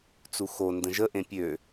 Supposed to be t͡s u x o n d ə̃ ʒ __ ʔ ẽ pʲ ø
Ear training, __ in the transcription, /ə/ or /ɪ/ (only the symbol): ə